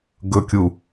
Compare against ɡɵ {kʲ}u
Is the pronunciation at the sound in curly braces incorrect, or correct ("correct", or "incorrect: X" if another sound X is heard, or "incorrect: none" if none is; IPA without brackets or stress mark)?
correct